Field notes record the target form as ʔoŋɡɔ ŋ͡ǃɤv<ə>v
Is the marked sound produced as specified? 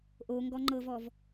no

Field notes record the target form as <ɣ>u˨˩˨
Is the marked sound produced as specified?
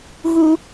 yes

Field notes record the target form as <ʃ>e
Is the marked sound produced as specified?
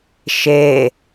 yes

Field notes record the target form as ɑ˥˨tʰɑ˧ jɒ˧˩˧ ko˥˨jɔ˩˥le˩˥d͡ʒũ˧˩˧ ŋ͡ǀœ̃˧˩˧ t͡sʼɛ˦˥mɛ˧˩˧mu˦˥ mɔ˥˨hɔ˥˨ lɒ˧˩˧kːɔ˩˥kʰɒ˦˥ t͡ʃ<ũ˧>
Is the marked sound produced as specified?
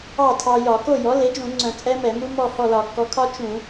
no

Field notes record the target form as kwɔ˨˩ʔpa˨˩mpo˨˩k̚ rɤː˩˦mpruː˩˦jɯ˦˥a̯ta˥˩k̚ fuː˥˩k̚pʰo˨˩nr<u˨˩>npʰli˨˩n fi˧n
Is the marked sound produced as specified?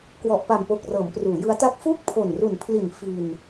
yes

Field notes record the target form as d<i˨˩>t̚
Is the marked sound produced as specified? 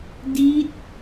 no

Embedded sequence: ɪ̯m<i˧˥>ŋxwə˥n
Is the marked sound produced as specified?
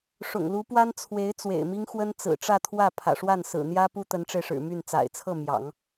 no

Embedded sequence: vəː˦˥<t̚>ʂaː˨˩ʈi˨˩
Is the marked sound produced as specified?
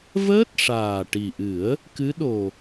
yes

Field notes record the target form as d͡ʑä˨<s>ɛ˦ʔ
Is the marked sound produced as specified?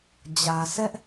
yes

